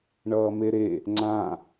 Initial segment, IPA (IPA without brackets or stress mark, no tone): ɳ